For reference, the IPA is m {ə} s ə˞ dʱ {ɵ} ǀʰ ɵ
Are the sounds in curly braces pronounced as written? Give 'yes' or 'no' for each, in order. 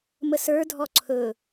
yes, no

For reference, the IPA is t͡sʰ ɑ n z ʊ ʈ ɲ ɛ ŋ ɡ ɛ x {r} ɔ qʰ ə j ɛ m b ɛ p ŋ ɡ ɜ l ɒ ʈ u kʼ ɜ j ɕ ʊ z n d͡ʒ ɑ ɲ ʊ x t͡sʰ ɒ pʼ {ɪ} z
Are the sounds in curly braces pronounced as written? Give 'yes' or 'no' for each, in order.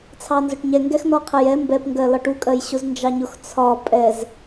no, no

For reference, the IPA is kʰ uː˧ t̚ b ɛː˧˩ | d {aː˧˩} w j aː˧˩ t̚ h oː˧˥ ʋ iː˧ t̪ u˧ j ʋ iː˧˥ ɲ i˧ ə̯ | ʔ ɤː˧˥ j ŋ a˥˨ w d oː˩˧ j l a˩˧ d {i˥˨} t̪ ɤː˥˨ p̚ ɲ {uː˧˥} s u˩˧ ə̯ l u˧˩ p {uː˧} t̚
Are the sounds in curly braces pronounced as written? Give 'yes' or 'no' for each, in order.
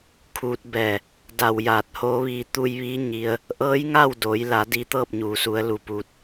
no, no, no, yes

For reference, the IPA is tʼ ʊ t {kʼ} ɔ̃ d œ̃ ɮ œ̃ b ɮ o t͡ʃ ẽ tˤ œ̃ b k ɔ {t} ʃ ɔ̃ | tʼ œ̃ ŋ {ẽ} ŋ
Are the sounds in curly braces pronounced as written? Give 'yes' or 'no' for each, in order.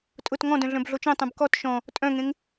no, yes, yes

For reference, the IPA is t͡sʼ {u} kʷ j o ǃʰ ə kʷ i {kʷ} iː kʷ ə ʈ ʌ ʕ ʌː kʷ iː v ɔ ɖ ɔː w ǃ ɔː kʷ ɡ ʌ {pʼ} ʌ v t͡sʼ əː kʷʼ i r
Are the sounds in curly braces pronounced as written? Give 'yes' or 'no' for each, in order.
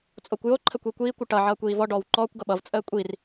no, yes, no

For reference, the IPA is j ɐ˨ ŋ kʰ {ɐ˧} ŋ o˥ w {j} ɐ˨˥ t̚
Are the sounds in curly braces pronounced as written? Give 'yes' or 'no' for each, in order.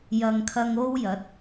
yes, yes

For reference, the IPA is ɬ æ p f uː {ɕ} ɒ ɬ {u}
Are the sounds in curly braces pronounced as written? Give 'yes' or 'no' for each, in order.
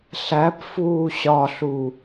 yes, yes

